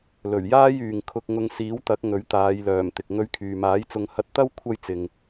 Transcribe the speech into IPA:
l ɵ˨˩ ɥ j aː˥ j yː˨ ŋ kʰ ʊ˧ k̚ ŋ ʊ˧ ŋ s iː˨˥ w t̪ ɐ˨˥ k̚ ŋ ɵ˨˥ ɥ t̪ aː˨˧ j l œː˨˩ m t̪ ɪ˨ k̚ ŋ ɵ˧ ɥ kʰ yː˨ m aː˨˥ j t͡s ʊ˧ ŋ h ɐ˧ t̚ t̪ ɐ˥ w kʷʰ ɐ˥ j t͡s ɪ˧ ŋ

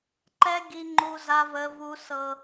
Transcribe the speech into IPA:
ǃ ɛ˦ ɡ i˦ ŋ͡ǃ u˦ z a˦ v ə˦ v u˦ s ɤ˦

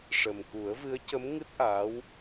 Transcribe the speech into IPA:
ʂ ə˨˩ m k u˨˩˦ ə̯ v ɨ˧˥ ə̯ c ə˧˥ m ŋ ɨ˦˥ t̚ ʔ aː˧˥ w

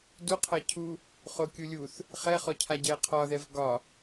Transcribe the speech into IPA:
d u qʰ ʌ cʰ u | χ o kʲ u lʲ u θ | χ ɛ χ ɔ cʰ a ɟ ɛ qʰ ɒ ð ɛ v ɡ ɒ

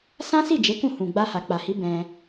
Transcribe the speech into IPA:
s ã˦ s i˦˨ d͡ʒ e˨˦ k ũ˦˨ h ũ˨ ɡ͡b a˧ h a˨ k͡p a˨ h i˨˦ b ɛ̃˧

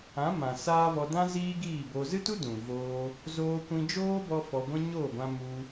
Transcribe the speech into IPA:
ã˨˦ m ã˨ s aː˦ v ɔ˧ d ã˦ z iː˦ ɡ iː˦˨ b o˧ z ɨ˦ t u˦ d ũ˨ v oː˧ | z oː˧ kʷ ĩ˧ d͡ʒ oː˦ b ɔ˧ f ɔ˧ ɡʷ ĩ˦ ɲ o˦˨ ɡʷ ã˧ m u˧

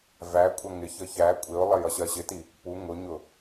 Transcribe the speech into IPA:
v æ kʷʼ ʌ ŋ ɪ ç ə ç æ kʷʼ ɪ ʊ̯ lˠ ə j ʌ ɕ ɜ ɕ ɪ t i | p u ŋ ʊ ɲ ʊ

